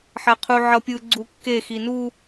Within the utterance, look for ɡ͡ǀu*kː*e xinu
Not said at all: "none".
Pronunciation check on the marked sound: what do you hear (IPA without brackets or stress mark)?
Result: kː